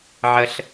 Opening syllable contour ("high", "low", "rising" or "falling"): high